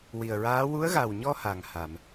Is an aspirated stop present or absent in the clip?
absent